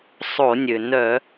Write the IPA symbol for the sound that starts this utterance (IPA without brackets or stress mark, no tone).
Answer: sˤ